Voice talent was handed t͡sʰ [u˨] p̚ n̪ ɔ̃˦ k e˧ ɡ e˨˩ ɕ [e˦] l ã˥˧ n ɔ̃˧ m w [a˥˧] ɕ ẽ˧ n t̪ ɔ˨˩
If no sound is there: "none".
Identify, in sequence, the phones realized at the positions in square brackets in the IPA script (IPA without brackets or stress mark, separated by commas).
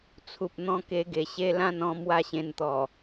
u˨, e˦, a˥˧